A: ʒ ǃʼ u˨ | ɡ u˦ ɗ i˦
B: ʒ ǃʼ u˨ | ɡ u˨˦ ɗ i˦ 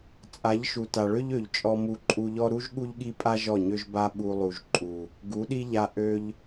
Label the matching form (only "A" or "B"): B